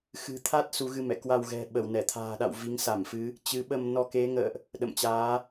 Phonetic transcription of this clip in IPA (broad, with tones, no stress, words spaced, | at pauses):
xɨ̤˨˩t̪ʰa˦˥t̚ su˨˦ɣɨ˧mɛ̰˧˨ kwa˧wɣɛ̤˨˩ ɓə˧˩wnɛ˧˩t̪ʰa̤ː˨˩ɗa̰˧˨w vi˨˦ŋsa˧˩mfɨ˨˦ | t͡ɕɨ˨˦ɓə˧m nɔ˧ke˨˦ŋə̰ː˧˨ʔ | ɗə̰˧˨mt͡ɕaː˨˦